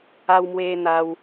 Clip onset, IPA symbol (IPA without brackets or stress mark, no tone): a